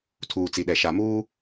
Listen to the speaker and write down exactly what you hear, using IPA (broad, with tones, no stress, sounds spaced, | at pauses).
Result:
tʰ uː˨ t͡s i˨ ɗ ɛ˨ ʃ a˨ m uː˦